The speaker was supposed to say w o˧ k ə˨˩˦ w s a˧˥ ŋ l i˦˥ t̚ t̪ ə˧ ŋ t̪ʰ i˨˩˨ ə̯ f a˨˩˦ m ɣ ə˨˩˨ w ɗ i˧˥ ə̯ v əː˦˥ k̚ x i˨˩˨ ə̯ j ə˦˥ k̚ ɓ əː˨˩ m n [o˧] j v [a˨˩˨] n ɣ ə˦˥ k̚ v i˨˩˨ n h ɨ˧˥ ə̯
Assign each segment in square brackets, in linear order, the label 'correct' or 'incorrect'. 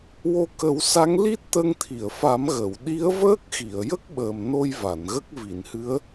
correct, correct

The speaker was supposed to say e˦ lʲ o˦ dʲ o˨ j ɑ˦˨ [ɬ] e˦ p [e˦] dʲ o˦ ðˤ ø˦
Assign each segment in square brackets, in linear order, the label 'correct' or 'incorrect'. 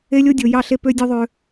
correct, incorrect: ø˦

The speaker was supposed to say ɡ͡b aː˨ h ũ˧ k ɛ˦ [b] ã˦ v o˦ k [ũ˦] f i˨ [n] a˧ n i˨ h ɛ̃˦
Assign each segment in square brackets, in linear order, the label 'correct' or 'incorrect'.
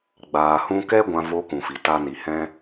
incorrect: ɡʷ, incorrect: ũ˨, incorrect: t

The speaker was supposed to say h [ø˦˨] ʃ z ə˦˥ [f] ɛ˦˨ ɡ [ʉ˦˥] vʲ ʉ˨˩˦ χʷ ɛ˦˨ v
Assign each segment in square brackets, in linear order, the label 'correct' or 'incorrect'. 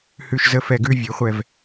incorrect: ʉ˦˨, correct, correct

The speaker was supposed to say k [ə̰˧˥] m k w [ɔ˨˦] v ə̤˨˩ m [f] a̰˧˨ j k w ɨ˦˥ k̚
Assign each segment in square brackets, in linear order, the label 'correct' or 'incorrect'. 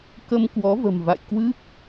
incorrect: ə˧, correct, incorrect: v

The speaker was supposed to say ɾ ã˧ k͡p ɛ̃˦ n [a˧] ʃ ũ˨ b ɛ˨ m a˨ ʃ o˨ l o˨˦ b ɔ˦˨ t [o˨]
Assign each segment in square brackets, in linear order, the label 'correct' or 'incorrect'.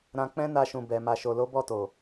correct, correct

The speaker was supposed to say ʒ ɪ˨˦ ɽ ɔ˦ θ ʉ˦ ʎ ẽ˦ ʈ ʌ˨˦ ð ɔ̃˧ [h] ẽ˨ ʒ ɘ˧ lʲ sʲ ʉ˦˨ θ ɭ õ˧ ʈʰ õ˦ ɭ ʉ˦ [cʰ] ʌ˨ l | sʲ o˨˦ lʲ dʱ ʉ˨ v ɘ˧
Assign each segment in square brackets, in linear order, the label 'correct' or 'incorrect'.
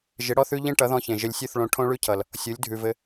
incorrect: ç, correct

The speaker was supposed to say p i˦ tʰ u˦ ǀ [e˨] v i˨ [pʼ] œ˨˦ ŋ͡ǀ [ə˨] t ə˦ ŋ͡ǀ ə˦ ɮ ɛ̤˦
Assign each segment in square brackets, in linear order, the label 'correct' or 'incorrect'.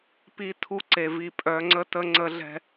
correct, correct, incorrect: ə˦

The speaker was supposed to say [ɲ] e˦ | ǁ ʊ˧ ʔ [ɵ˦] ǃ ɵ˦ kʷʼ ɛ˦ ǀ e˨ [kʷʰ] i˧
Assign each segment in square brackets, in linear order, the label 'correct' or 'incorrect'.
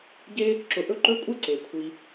incorrect: ɟ, correct, correct

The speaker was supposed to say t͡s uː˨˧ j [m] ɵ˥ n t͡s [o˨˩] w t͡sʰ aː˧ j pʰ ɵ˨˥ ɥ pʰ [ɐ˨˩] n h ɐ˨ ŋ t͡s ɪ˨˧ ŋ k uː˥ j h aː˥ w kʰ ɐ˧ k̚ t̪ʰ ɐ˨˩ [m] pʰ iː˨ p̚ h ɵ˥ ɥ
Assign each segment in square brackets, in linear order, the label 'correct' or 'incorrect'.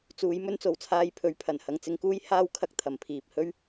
correct, correct, correct, correct

